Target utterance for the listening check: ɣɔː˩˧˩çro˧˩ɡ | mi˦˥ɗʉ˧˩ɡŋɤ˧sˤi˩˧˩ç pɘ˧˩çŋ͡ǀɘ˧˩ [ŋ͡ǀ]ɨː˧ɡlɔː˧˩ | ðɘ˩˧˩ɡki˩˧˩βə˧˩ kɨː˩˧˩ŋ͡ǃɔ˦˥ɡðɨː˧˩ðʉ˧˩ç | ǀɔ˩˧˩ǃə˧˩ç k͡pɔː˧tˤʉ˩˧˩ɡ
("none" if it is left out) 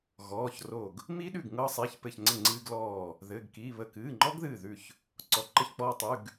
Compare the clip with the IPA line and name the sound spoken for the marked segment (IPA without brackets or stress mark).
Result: ŋ͡ǀ